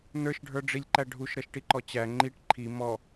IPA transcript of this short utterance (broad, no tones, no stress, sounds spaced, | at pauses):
n ə˞ ʃ ɖʱ ə˞ ɖ͡ʐ i lʲ ǃ æ ɖʱ u ʃ ɾ ʌ ʃ ʈ i ǃ ɔ t͡ɕ æ ŋ͡ǃ i ʈ ǃʰ i m ɔ